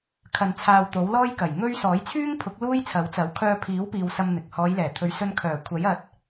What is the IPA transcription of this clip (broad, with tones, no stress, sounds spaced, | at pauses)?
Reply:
kʰ ɐ˧ n t͡sʰ aː˧ w t̪ o˨˥ w l ɔː˥ j k ɐ˨˩ j ŋ ɵ˥ ɥ s ɔː˨˥ j t͡sʰ yː˥ ŋ pʰ ʊ˨˥ k̚ l uː˥ j t͡sʰ ɐ˨˥ w t͡s ɐ˨˥ w kʰ œː˧ pʰ iː˨˥ w p iː˨ w s ɐ˧ m n̪ ɪ˨ k̚ h ɔː˨˧ j l ɛː˨˩ t̪ʰ ɵ˨˧ ɥ s ɵ˧ n kʰ œː˨˩ kʷʰ ɐ˨˥ j ɐ˧ t̚